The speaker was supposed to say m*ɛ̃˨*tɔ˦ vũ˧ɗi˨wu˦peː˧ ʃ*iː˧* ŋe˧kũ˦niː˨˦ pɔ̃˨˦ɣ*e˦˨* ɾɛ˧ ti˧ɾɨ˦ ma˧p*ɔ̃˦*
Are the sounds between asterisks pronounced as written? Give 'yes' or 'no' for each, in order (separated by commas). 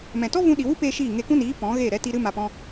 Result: yes, no, yes, yes